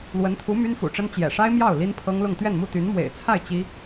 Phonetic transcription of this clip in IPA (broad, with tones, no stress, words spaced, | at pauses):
lwə˧˥nt̪ʰu˧˥ my˥nfṵ˨˩ʈ͡ʂə˥n t͡ɕjɛ̰˨˩ʂa˥ɪ̯ mjɑ˥˩ʊ̯ li˥npʰɤ˥ŋlʊ˥˧ŋ t̪ɥɛ˥˧nmu˥˩ t̪y˧˥n mwḛ˨˩ɪ̯t͡sʰa˥˩ɪ̯ t͡ɕi˥